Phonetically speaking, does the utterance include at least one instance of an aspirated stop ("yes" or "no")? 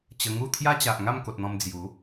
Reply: yes